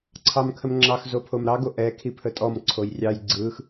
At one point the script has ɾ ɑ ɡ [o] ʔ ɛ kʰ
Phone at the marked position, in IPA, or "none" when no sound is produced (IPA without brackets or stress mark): o